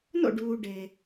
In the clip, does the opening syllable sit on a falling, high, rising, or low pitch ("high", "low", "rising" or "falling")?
falling